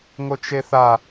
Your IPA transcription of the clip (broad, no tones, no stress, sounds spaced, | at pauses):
ŋ o t͡ʃ e θ a